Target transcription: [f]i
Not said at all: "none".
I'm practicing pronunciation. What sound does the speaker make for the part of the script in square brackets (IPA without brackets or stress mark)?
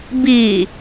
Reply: b